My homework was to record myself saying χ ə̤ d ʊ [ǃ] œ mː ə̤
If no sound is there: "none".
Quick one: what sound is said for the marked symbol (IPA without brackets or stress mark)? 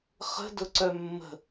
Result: ǀ